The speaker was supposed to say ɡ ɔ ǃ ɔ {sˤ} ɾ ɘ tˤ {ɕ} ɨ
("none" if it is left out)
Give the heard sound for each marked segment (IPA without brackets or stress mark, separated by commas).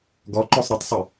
sˤ, sˤ